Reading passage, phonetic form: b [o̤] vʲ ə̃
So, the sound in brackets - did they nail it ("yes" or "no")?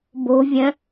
yes